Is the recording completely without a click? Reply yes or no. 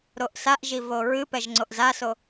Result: no